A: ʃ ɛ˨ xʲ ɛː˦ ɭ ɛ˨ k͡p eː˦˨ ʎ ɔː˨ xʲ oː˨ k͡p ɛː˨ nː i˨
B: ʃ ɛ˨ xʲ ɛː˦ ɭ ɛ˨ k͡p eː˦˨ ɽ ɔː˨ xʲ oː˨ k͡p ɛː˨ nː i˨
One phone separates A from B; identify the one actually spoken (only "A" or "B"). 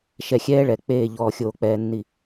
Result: A